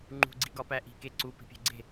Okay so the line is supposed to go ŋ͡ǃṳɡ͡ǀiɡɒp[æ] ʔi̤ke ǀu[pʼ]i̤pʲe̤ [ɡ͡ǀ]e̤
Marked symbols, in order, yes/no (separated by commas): yes, no, yes